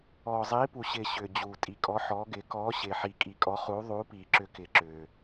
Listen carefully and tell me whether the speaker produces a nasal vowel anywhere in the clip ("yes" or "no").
no